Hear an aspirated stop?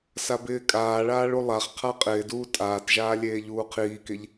yes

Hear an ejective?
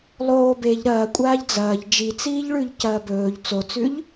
yes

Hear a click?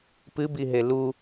no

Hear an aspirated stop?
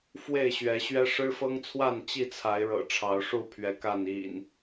yes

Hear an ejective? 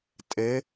yes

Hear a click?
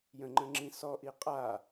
yes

